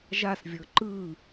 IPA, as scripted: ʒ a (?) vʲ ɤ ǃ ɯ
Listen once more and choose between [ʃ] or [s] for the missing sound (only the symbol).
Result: s